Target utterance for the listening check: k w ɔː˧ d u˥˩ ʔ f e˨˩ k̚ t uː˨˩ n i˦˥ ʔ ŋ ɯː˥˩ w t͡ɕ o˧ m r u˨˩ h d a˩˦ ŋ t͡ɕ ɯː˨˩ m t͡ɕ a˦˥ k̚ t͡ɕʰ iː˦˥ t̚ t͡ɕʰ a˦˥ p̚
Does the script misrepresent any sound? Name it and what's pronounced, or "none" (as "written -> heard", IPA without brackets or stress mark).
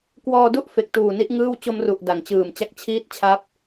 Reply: h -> ʔ